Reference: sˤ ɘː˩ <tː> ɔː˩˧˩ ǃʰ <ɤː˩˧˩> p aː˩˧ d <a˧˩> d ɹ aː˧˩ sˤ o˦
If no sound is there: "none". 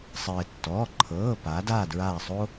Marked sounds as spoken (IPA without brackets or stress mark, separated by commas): tː, ɤː˩˧˩, aː˧˩